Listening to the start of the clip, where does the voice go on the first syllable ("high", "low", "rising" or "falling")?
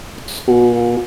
high